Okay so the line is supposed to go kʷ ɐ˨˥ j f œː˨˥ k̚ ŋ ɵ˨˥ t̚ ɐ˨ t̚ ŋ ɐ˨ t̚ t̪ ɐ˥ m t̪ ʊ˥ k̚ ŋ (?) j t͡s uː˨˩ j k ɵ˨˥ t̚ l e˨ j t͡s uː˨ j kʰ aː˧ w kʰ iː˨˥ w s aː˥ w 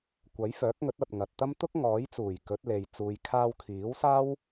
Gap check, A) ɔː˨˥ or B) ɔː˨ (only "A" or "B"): A